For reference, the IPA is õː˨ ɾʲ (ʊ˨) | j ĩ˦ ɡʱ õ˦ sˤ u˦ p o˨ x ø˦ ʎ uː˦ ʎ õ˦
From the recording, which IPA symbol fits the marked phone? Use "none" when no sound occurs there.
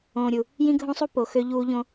u˨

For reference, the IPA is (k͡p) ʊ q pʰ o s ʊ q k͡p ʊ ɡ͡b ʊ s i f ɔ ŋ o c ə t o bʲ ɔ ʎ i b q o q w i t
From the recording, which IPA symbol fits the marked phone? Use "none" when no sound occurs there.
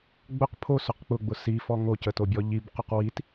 ɡ͡b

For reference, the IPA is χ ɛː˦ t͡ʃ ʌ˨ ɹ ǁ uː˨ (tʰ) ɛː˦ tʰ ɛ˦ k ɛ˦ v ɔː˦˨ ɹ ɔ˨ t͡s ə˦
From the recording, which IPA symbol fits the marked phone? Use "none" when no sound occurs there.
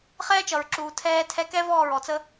tʰ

